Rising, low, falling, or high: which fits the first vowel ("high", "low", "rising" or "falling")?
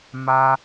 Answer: high